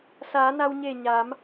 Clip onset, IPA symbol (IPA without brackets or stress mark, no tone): s